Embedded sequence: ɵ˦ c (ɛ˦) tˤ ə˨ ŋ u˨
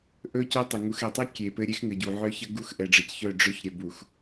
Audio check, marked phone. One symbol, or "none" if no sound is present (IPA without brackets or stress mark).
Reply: œ˦